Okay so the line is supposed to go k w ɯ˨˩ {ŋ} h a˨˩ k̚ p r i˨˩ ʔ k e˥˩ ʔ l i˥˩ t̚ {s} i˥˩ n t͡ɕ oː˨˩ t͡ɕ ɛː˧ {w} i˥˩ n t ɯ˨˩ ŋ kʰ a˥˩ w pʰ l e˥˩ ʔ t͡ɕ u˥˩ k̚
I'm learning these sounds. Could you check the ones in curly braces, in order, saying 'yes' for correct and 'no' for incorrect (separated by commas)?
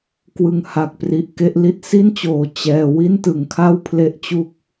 yes, yes, yes